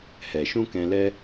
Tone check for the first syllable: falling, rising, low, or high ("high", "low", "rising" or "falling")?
low